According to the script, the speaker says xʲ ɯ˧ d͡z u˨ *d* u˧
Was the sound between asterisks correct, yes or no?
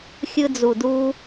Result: yes